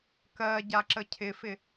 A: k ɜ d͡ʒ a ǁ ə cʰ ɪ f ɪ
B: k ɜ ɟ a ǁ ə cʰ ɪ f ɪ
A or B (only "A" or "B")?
B